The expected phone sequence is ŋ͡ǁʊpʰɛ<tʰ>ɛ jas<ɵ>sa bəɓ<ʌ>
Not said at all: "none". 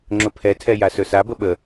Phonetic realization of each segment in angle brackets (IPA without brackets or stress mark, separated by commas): tʰ, ɵ, ə